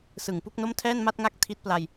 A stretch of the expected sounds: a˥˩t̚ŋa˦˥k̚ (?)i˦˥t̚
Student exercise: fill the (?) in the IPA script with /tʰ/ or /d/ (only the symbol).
tʰ